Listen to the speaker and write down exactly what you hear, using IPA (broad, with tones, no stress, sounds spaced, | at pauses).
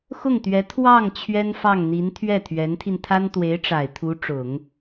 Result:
x ʊ˥˩ ŋ t̪ ɥ ɛ˧˥ t̪ʰ w ɑ˥˩ ŋ t͡ɕʰ ɥ ɛ˥ n f ɑ˥˩ ŋ n̪ i˧˥ n t̪ʰ ɥ ɛ˥˩ t̪ʰ ɥ ɛ˧˥ n t̪ʰ i˧ n t̪ʰ a˥ n t̪ w e˧˥ ɪ̯ ʈ͡ʂ a˨˩ ɪ̯ t̪ʰ u˧˥ ʈ͡ʂ ʊ˨˩˦ ŋ